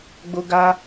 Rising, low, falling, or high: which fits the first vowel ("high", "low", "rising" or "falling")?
high